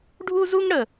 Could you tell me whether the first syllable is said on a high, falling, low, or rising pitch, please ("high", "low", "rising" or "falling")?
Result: high